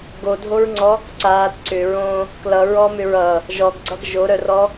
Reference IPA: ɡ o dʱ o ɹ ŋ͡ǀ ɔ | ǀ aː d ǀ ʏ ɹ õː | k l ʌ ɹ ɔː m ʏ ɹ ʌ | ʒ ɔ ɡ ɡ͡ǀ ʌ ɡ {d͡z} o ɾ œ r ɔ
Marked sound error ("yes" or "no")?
yes